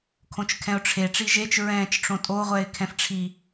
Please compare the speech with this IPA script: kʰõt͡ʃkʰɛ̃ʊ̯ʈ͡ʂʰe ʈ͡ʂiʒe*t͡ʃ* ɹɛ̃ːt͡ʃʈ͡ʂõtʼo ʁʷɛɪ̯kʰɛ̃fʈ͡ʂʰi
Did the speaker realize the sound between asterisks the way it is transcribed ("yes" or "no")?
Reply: yes